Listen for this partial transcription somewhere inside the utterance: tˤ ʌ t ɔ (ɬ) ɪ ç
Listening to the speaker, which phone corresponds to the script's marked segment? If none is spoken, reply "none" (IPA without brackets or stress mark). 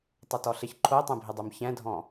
ɬ